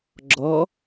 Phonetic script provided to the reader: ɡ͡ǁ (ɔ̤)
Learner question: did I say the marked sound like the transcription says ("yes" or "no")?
no